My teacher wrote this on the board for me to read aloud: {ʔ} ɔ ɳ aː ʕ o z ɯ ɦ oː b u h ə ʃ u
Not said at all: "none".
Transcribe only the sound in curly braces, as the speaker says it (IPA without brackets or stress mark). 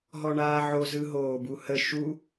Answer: ɦ